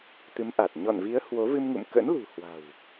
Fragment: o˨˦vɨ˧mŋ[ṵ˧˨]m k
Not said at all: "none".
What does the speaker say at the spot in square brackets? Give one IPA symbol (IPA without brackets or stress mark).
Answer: ṵ˧˨